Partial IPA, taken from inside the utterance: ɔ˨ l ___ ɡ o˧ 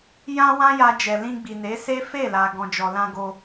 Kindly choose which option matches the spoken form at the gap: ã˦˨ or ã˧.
ã˧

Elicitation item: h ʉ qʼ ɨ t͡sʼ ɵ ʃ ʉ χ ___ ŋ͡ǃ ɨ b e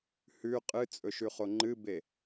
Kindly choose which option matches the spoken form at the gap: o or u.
o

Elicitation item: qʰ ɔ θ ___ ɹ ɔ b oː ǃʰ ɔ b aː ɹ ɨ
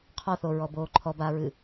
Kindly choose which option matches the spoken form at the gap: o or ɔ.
o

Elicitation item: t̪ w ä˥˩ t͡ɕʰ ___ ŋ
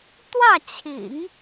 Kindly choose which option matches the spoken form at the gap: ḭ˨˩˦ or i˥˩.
ḭ˨˩˦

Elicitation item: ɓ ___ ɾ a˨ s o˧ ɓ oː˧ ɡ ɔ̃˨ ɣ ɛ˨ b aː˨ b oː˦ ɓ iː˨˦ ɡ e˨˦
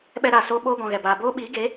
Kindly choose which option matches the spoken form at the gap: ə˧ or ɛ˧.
ɛ˧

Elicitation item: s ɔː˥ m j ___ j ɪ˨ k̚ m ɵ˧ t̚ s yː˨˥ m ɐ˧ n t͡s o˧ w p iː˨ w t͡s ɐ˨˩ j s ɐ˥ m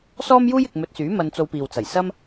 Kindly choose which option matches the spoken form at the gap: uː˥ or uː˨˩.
uː˥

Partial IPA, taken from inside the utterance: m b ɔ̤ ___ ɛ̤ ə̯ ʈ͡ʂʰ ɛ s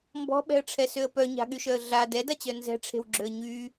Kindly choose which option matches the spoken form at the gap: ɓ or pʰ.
ɓ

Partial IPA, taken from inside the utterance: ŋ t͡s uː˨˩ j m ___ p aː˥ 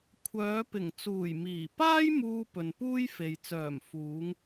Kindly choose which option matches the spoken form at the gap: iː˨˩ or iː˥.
iː˨˩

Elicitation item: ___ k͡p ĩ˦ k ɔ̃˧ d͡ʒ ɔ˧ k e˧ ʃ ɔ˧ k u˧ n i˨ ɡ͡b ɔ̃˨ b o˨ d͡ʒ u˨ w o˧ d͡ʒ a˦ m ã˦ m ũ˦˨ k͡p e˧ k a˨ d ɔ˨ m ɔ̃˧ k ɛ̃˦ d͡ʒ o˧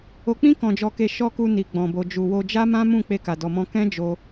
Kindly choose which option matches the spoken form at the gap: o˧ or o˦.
o˧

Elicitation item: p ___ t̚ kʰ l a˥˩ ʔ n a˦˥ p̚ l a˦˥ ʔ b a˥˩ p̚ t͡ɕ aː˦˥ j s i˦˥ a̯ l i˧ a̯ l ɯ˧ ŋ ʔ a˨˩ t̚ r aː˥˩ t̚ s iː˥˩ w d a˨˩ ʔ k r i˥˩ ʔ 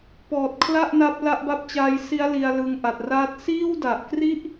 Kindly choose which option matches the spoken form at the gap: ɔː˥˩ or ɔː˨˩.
ɔː˨˩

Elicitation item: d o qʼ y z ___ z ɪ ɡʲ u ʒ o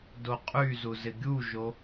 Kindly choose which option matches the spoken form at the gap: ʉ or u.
u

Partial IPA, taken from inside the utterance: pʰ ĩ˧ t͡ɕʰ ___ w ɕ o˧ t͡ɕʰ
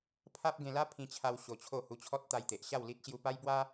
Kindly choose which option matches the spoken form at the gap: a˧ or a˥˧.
a˧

